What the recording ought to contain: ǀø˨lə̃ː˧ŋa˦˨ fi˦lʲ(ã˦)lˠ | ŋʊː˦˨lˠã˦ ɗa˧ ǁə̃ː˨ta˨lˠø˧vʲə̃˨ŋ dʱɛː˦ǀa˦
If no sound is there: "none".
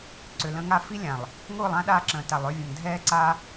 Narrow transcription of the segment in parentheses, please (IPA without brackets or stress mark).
ã˨